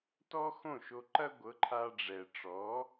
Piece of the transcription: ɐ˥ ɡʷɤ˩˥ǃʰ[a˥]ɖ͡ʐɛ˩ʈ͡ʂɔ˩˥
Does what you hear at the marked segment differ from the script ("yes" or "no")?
yes